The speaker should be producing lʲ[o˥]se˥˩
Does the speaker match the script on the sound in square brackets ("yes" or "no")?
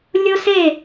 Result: yes